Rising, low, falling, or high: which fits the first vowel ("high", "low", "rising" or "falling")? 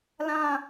falling